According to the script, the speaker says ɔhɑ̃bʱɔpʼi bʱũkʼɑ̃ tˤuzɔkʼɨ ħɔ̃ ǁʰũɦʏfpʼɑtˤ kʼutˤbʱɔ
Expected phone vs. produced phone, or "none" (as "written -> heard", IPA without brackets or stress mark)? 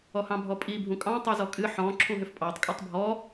none